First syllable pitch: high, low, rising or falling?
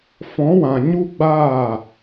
rising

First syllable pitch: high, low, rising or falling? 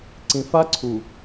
low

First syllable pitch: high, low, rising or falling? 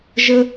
high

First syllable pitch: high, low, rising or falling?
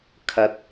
rising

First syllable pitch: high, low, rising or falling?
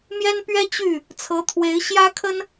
high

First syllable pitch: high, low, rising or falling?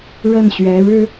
falling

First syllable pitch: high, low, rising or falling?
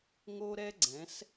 high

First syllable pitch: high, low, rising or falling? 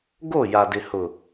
falling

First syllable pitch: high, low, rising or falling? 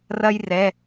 high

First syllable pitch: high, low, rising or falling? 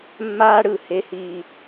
high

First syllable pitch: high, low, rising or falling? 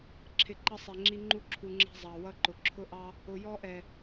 low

